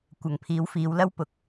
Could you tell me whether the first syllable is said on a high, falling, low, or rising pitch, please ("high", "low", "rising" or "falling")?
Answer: low